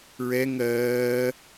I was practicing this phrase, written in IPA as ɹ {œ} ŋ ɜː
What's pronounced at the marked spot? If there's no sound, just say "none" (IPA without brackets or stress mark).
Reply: ɛ